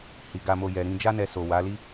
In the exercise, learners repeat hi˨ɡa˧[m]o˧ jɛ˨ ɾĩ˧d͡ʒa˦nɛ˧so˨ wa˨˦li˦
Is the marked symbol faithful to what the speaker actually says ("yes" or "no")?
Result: yes